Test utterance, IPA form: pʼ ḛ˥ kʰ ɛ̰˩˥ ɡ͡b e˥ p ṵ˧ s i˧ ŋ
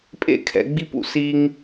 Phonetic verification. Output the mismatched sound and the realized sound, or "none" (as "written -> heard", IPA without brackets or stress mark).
e˥ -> i˥